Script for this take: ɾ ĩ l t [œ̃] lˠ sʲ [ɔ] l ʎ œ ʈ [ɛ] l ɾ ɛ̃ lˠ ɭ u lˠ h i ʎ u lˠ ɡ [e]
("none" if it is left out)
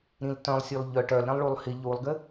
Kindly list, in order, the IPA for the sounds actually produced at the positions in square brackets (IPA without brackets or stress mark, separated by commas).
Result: œ̃, ɔ, œ, ɘ